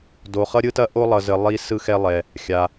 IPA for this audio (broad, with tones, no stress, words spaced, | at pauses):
do˧χʌ˥ɾʲɯ˥tɐ˥ ʔo˥ lˠʌ˧zə˧ lˠi˧ sɯ˥xɛ˥lˠɛ˧ | xʲa˧